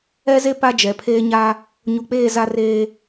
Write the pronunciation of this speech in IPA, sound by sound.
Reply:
ɛ˦ze˦ pa˦ d͡ʒɛ˨pʰeː˦ ɲa˦ | ɲu˨k͡peː˦˨ za˦reː˦

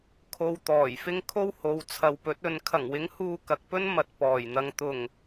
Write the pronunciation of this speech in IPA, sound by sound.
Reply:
kʰo˧wt̪ɔː˨˩jfɪ˥ŋ kʰo˥who˨˧wt͡sʰɐ˨wpɵ˨˥t̚ ɵ˨˧n kʰɐ˨˩ŋwɪ˨˥ŋ huː˧kɐ˨k̚pɵ˥n mɐ˨t̚pɔː˨˩jn̪ɐ˨ŋ t̪ʊ˨˩ŋ

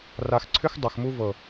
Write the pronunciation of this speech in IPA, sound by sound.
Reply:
ra˨xǀʰʏ˦x dˤʏ˨xmu˦ vɤ˨

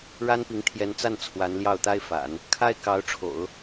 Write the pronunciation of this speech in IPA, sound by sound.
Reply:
ɻa˥npi˧˥ŋ t̪ʰjɛ˧˥nt͡sa˥˩n t͡sʰwa˧˥nljɑ˥˩ʊ̯t̪a˥ɪ̯ fa̰˨˩˦n | kʰa˥ɪ̯ kɑ˧˥ʊ̯ ʈ͡ʂʰo̰˨˩˦ʊ̯

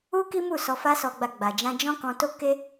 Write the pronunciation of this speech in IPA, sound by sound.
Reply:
u˦ki˦mu˦˨ sɔ˧fa˦sɔ˧ɡ͡ba˧ ɡ͡ba˨d͡ʒã˧d͡ʒɔ̃˦kɔ̃˧ to˦ke˦

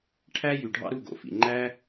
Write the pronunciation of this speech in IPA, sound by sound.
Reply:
ʈʰæ˦jy˨ ɖʱɑ̰˦ ɾu˦˨ ɡo̰˨˦fḭ˨ ŋ͡ǃæ˦

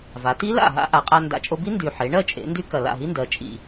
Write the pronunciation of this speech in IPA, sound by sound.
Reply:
va˩˧ ti˦˥la̰˥˩ ɦa̰˦˥ʔa˩˧qʼa˧ nda̰˨˩t͡ʃʼo˧bi˦˥ ndy˨˩ħe˩˧ ɳɜ˥˩t͡ʃʼḛ˩˧ndy˧ kɐ˨˩ la̰˥˩ɦi˦˥ndɜ˩˧ t͡ʃʼḭ˨˩

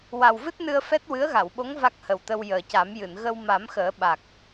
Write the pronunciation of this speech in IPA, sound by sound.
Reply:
wa˨˩wvɨ˦˥t̚nɨ˧ə̯ fɛ˦˥t̚ wɨ˧˥ə̯ɣa˨˩˨wɓo˧˥ŋ va˦˥k̚hə˨˩wt̪ə˧w jəː˨˩ca˨˩˦m jɨ˨˩˨nɣə˧w ma˨˩˦mxəː˨˩˦ ɓa˨˩k̚

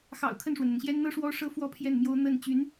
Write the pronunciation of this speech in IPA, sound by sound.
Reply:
xɑ̰˨˩ʊ̯ kʰə˥˩nʂwə˩nn̪ə˩nɕjɛ˥n n̪ɤ˥ ʂwɔ˥ʂɤ˥ fwɔ˥pʰjɛ˥˩nmjo˥ʊ̯ n̪ə˥˩n t͡ɕy˧˥n

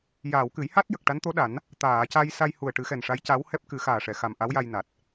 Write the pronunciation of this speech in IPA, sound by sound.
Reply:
jaː˨˩˨wkɨ˨˩˦j ha˦˥t̚ jə˨˩k̚ʈa˧˥nt̪o˧˥ɗa˨˩˦n | t̪aː˨˩˨ca˧j sa˧jhu˨˩ə̯ʈɨ˨˩˦ xɛ˨˩nʂa˧˥jca˧˥w hɛ˦˥p̚ kɨ˨˩˦xaː˨˩ʂɛ˨˩˨xa˨˩m ʔa˧˥wja˧j na˨˩t̚

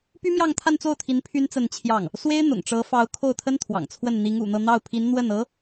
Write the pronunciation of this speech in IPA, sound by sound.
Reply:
py˥mjɑ˥˧ŋ t̪ʰa˥˧nt͡so˥˩ʊ̯t̪ʰi˧˥n pʰy˥nt͡sə˥˧nt͡ɕʰjɑ˥˩ŋ | swe˥ɪ̯n̪ʊ̰˨˩ŋʈ͡ʂɤ˧˥fɑ˧˥ʊ̯ kʰo˥˩ʊ̯t̪ʰə˥nt̪ʰwɑ̰˨˩ŋt͡sʰwə˥˩n n̪i˧˥ŋṵ˨˩n̪ɤ˥˧ n̪ɑ˥˩ʊ̯pʰi˧˥n n̪wə˥˩nɤ˧˥

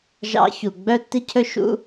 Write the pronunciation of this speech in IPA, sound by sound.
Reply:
ʒɑ̰˧çu˩ ɡ͡bœ˥tːi˥cʰɵ˥ ʃṵ˥

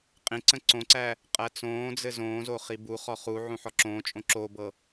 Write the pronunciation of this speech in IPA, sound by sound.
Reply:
qʼĩǀə̃ ǀõǀæ | qʼæt͡sõːd͡zɘ zõːzo χibuχɔ χu ʕũħɔǁõːt͡ʃʼõ ǁobɤ

